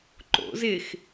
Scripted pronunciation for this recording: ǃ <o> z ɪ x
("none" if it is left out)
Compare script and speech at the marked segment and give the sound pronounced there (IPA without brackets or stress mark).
o̰